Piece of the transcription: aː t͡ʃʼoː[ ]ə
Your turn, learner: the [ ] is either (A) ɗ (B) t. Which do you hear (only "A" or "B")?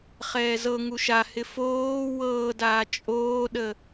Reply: A